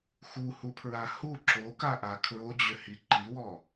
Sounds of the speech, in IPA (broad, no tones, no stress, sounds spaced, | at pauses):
x u h u pʰ ɹ a h u ǁ o k a ʔ a kʰ ɹ o d͡ʑ ʏ h i ǃ i w ɔ